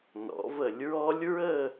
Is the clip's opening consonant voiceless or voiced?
voiced